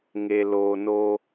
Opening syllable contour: low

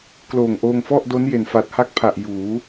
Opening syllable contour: low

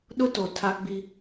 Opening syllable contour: high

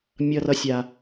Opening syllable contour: high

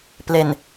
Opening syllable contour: low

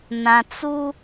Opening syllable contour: low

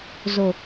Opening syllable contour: low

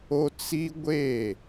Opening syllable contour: high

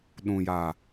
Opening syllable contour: low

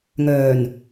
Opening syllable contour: low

